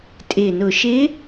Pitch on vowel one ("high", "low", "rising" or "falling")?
low